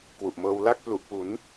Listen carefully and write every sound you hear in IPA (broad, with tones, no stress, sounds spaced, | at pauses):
k w u˨˩ ʔ m ɤː˧ w l a˥˩ k̚ p l u˨˩ ʔ p u˩˦ n